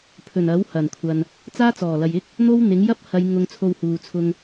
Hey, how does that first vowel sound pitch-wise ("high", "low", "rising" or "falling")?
low